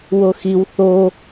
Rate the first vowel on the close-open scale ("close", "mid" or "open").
mid